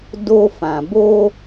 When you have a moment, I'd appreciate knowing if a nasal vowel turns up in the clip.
yes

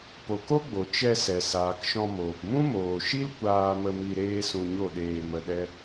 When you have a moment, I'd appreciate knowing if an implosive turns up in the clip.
yes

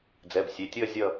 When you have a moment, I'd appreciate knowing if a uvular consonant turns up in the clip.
no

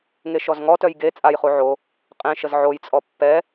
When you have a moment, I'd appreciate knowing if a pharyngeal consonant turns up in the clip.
yes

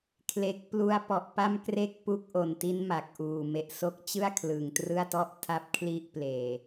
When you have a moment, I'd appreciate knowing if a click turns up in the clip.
no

